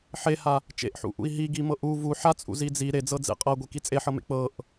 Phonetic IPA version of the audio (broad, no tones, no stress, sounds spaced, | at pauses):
ħ e h a | t͡ʃ ḛ ʔ ħ ṵ ʔ ṵ i̯ ɦ i ɡ i m ɤ ʔ u v u ħ a t͡sʼ ṵ z i d͡z i ɾ e d͡z ɤ d͡z ḛ qʼ ɤ ɡʷ e k i t͡sʼ e ħ ɤ m ḛ k͡p ɤ ʔ